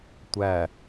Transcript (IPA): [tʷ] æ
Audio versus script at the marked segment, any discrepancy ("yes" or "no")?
no